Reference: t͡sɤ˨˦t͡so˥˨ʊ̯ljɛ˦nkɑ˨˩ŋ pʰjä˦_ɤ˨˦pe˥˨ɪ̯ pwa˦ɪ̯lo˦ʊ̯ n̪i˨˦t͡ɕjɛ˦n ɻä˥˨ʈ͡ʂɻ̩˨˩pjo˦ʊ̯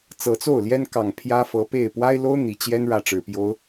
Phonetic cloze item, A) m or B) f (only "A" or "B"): B